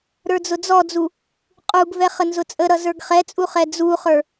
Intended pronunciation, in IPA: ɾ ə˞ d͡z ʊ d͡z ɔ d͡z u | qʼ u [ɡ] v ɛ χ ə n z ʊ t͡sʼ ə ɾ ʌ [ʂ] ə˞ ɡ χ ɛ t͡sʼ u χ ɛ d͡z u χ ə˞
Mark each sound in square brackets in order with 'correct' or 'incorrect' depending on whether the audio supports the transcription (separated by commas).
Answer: correct, incorrect